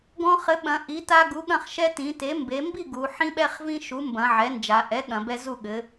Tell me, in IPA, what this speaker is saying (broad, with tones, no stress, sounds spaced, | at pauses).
ɡ ɔ̃˦ χ ɘ˩˥ ɓ ɐ̃˩˧ ʔ i˩˥ t a˦ ɡ u˩˥ ɠ ɐ̃˥˨ χ ʃ ɛ˦ t ĩ˩˧ t e˩˥ m b e˩˧ m b i˥˨ ɡ u˩˧ ħ ĩ˦ ɓ ɛ˦ χ v ĩ˦ ʃ u˩˥ m b ɐ̃˩˧ ʕ ɛ˩˥ n d͡ʒ a˩˧ ʔ ɛ˩˥ ɠ ɐ̃˩˧ b ɛ˦ z u˥˨ ɠ ɘ˩˥